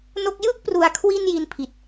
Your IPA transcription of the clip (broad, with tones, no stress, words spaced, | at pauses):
no˥˩k̚ jɯ˥˩k̚pru˩˦a̯kʰwi˧n ji˧n pʰi˨˩t̚